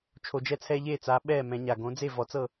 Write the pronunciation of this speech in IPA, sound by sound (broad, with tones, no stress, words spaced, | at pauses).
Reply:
t͡ʃʰo˨˩d͡ʒɛ˦t͡sʰɛ˦ ʎe˥˨t͡sa˨˦ɓɛː˥˨ mɛ̃˨˦ɲa˨˩ ɡõ˨˦d͡ze˥˨vɔ˨˦t͡sɤ˥˨